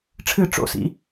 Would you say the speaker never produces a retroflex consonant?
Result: no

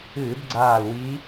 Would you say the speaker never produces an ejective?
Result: yes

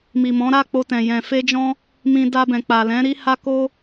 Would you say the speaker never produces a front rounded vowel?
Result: yes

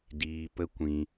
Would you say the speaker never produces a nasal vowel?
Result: no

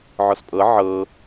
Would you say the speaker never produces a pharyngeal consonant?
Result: no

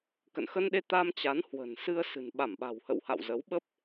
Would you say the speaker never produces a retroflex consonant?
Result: yes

